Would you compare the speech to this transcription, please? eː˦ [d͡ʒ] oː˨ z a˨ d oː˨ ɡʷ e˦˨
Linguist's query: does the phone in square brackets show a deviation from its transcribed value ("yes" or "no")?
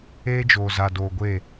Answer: no